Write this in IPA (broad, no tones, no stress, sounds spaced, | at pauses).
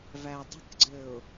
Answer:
v æ dˤ ə̤ k ɡ͡ǀ ɘ ʊ̯